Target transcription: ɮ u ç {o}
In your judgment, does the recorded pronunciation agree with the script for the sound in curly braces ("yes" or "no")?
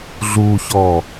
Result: no